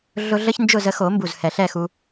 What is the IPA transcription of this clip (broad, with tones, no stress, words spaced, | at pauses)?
ɮʊ˥ ɮə˥çnd͡ʒʊ˥˨ zə˧xo˨˩˦ mbu˨˩zhɛ˨˩˦ɬɛ˥˨xu˧